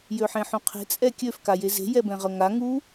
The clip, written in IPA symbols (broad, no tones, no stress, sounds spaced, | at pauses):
j ø ħ ẽ ħ ũ qʰ e̤ t͡sʼ ɛ kʲ ø f k a j e z e̤ j ɛ b ɛ̃ ʁ ɤ ŋ a ŋ u